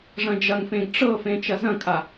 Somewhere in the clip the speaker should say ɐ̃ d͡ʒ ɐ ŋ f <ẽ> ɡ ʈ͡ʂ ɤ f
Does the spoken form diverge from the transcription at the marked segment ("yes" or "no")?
no